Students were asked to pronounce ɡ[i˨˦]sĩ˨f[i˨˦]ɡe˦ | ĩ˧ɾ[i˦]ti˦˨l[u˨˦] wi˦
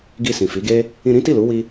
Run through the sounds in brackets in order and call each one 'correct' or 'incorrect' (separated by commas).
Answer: incorrect, correct, incorrect, correct